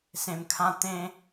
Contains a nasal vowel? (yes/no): yes